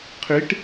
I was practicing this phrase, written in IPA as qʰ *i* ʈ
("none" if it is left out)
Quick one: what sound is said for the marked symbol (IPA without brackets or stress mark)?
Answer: i